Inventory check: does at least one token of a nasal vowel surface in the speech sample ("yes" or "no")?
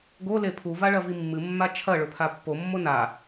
no